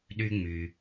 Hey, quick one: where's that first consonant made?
tongue tip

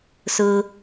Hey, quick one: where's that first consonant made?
tongue tip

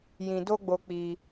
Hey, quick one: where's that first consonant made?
palate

